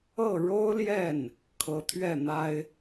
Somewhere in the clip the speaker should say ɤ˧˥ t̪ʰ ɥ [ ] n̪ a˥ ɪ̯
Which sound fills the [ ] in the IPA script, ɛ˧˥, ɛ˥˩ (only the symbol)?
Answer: ɛ˥˩